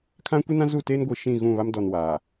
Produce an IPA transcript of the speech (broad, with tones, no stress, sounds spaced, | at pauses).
kʰ ã˦ kʷ i˦ n ã˦ z u˦˨ t eː˦ n ɡʷ i˨ ʃ ĩ˦˨ ɣ ũ˦˨ β a˦ m d ɔ˨ n w aː˨